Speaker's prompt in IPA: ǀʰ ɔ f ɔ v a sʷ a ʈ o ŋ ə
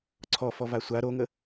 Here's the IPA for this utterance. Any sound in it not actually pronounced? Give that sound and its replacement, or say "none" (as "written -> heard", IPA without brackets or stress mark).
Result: ʈ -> ɾ